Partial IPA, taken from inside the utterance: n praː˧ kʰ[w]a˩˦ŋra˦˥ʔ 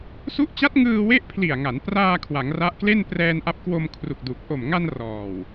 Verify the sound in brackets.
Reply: correct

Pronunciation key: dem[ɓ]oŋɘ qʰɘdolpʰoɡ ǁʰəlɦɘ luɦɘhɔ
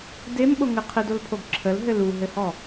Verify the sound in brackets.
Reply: correct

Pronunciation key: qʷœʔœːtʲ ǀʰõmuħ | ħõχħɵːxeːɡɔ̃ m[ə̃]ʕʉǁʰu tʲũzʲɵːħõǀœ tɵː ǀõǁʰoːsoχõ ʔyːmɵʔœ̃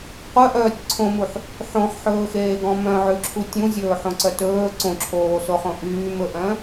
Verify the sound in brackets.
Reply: incorrect: œ̃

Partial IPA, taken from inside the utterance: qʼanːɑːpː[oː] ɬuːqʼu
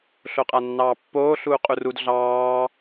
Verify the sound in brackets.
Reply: correct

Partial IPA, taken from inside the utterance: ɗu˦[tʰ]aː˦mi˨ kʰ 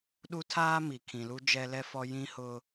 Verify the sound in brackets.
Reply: correct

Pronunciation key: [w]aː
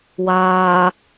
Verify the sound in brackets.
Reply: correct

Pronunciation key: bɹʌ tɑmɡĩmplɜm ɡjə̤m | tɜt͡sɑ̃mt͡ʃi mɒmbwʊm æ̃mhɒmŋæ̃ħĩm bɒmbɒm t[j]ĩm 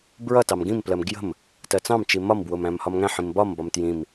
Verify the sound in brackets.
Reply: correct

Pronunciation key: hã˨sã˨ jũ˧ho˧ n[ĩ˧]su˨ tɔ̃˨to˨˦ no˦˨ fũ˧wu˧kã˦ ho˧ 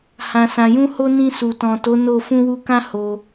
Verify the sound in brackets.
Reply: correct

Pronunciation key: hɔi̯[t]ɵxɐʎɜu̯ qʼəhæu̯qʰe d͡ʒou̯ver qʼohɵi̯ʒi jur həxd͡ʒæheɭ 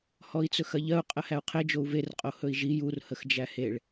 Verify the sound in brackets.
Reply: incorrect: t͡s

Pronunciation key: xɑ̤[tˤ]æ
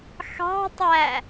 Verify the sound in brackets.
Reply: correct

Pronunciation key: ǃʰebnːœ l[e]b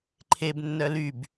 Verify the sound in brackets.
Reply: incorrect: y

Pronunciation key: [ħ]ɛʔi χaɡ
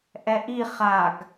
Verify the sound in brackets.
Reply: incorrect: ʔ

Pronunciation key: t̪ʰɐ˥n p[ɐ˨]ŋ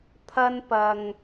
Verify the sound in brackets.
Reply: correct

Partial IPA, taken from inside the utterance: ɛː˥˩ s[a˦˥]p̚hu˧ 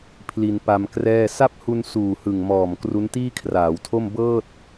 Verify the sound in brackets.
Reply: incorrect: a˥˩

